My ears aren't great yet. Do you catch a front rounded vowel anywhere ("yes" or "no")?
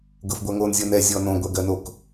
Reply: no